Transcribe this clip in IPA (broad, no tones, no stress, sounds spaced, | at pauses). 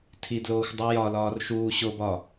tʰ i d l oː xʷ dˤ u j ɒ l ɒː r ʃ uː ɕ o b ɒ